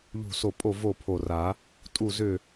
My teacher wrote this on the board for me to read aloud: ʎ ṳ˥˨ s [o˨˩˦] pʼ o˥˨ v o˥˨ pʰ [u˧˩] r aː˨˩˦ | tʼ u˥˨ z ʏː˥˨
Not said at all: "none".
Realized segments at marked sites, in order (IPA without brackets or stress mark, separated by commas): o˥˨, o˧˩